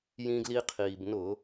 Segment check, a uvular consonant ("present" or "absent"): present